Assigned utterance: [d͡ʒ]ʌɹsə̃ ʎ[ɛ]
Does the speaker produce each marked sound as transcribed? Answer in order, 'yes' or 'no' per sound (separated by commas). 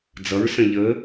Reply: no, no